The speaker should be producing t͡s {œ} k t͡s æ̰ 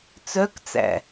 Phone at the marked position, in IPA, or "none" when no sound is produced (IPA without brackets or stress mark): œ